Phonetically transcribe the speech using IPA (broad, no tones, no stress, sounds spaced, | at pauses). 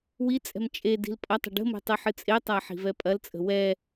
w i t͡sʼ ɛ̤ m t͡ʃʼ e d i̤ l pʼ ɐ tˤ ə̤ ɖ ə̤ m e̤ tˤ ɨ ħ ɨ t͡sʼ e tˤ a ħ i̤ v ɛ pʼ ɐ l t͡sʼ ə̤ w ɛ